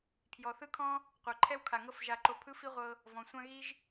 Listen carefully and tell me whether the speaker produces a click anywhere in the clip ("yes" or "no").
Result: yes